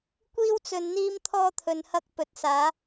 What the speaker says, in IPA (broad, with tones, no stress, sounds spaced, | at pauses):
kʷ iː˧ w t͡s ɵ˨ n n̪ iː˧ m t̪ʰ ɔː˧ t̪ʰ ɵ˨ n h ɐ˧ k̚ p ɵ˨ t̚ s aː˨˧